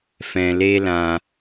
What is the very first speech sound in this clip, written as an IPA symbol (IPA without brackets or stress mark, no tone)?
f